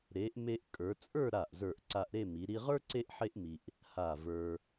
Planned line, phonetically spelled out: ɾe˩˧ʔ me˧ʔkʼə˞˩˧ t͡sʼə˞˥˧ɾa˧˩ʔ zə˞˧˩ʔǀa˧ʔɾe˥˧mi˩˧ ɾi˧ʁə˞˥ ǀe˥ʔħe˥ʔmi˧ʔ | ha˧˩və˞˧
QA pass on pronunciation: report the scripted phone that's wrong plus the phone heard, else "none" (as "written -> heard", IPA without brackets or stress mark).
none